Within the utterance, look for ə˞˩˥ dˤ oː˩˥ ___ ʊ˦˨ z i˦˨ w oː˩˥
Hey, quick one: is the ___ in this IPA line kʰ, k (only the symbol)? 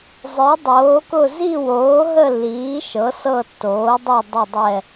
k